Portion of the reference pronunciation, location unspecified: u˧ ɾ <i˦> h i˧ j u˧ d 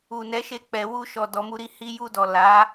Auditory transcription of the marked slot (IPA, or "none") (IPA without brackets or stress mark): i˧